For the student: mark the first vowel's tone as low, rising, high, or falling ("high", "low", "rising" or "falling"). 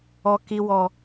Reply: high